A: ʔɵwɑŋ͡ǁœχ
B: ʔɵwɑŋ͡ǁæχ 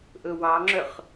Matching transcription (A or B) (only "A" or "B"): A